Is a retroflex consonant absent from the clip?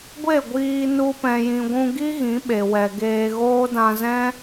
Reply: yes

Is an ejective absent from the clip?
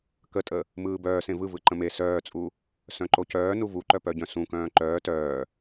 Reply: no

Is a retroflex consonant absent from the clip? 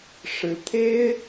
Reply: no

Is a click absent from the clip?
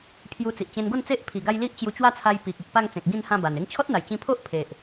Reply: yes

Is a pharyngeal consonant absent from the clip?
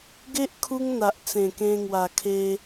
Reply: yes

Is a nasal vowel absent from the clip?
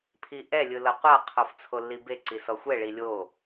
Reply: yes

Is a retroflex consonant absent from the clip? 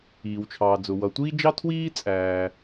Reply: yes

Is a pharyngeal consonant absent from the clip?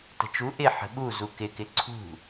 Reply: no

